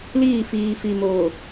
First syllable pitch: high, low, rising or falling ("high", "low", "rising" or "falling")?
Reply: falling